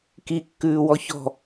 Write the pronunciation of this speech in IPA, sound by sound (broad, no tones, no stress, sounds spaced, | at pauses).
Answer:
k i kː ʉː w ɔ ç ɔ̤